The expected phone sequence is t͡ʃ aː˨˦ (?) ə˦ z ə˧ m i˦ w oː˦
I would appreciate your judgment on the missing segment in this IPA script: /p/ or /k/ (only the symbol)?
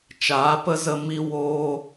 p